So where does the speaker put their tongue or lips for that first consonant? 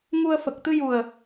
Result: velum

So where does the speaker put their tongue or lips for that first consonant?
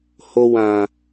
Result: throat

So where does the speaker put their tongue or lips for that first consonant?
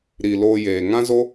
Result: tongue tip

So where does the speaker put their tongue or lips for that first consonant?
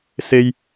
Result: tongue tip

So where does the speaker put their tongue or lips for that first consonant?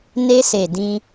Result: tongue tip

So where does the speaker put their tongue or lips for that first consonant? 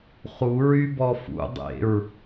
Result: uvula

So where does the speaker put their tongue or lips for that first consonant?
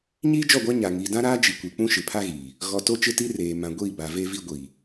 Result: palate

